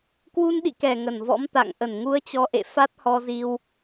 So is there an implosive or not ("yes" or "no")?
yes